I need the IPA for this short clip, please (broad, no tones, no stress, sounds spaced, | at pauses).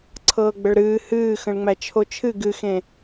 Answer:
ǀʰ ɤː ɡ͡b ə ɭ ɾ ɨː h ɨː x ə̃ ɭ ŋ͡m æ t͡ʃʰ o t͡ʃʰ ɨ ɡ ɨ x ẽ